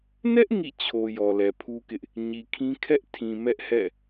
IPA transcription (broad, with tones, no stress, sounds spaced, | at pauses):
n ɛ˦ ʔ ŋ ḭ˦˨ t͡ɕʰ o˨ j ɔ˨ l ɛ˨ pʰ u˦ k ɪ˦ ʔ | ɲ i˨ kʰ ĩ˦ kʰ ɛ˦ ʔ tʰ ĩ˨ m ɛ˦ ʔ h ɛ̰˦˨